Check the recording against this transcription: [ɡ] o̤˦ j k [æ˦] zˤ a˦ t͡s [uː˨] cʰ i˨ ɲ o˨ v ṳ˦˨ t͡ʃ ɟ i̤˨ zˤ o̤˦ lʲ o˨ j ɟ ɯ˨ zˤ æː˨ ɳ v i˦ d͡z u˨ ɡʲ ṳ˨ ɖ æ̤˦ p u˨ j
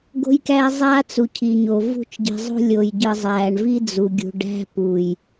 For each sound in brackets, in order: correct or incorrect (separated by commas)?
correct, correct, incorrect